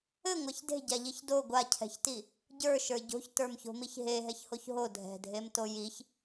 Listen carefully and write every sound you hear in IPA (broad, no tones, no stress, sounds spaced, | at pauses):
ɘ ŋʷ a ç d e̤ ɟ a ʎ i ç d o ɡʷ a cʰ ɛ̤ ç t i | ɟ ə˞ ʃ ə˞ ɟ o̤ ç t ə˞ m ç o̤ m i ç ɦ e ɦ ɛ ç h o ç ɦ o dʱ ɛ̤ dʱ e m t o j i ç